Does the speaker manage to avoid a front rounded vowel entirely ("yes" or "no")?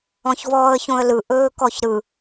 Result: yes